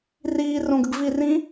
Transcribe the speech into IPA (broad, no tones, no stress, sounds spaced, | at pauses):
r iː r õ ɡ ə ɡ v i r ĩ